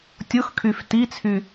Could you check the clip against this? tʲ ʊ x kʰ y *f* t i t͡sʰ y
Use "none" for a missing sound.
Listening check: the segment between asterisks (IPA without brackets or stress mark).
f